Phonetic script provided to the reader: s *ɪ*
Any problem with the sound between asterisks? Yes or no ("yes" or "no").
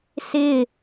no